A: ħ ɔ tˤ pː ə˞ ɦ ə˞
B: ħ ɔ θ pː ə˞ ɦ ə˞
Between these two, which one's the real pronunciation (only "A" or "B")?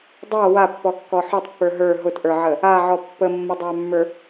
A